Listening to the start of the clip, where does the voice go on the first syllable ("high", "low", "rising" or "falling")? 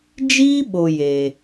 high